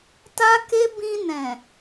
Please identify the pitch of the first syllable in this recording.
high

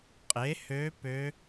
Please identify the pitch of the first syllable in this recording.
rising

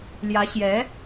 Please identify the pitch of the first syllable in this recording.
rising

